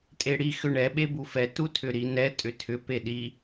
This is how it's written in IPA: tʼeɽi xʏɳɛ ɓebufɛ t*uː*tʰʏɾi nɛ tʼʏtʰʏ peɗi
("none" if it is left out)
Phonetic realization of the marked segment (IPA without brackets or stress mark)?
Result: u